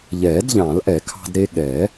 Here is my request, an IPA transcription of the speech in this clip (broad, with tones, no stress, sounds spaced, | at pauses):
ʎ ɛː˨˩˦ d ʎ ɑ̃˨˩˦ l ʔ ɛ˨˩˦ kʰ ɑ̤˧ d ɾ e˧ ɠ ɛ˨˩˦